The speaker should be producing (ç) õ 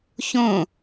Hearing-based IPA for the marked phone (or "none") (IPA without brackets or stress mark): ç